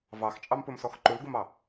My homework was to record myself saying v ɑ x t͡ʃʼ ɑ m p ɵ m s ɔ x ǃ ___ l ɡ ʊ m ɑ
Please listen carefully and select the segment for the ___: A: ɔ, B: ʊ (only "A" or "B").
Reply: B